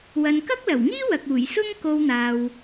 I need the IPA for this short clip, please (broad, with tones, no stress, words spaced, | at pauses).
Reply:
wɐ˨nkɐ˥k̚lɐ˨˩wŋiː˥ wɐ˨k̚uː˨˩jsʊ˥ŋ ko˧w n̪aː˨w